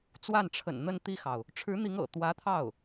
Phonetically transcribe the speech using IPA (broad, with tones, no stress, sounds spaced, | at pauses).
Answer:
t͡s w a˥˩ n ʈ͡ʂʰ ə̰˨˩ n n̪ ə˥˧ n t̪ i˥˩ x ɑ˩ ʊ̯ | ʈ͡ʂʰ ɻ̩˧˥ n̪ i˧˥ ŋ ɤ̰˨˩ t̪ w ä˧˥ t̪ʰ ɑ˥˩ ʊ̯